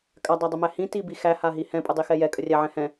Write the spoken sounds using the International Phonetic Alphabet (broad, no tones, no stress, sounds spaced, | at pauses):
kʼ a dˤ æ dˤ ə m æ h ĩ t i b i x æ h a ɦ i h ɛ̃ pʼ ə dˤ i x ɛ j ɛ kʼ ə rʲ æ ʕ ɛ̃ h ɛ̃